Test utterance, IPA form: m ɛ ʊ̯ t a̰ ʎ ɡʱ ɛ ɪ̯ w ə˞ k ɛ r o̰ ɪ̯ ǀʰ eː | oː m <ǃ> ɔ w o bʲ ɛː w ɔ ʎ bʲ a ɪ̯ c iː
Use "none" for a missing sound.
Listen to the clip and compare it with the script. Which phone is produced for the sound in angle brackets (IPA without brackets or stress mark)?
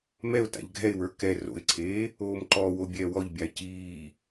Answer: ǃ